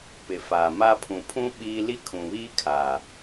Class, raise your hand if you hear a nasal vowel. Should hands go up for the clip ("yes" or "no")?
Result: yes